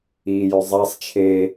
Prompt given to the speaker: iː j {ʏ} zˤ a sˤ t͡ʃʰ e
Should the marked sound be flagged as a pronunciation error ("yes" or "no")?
no